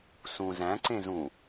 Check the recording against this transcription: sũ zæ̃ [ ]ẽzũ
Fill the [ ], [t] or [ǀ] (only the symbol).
ǀ